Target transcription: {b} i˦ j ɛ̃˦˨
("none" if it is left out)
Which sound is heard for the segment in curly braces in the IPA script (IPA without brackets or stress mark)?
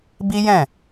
b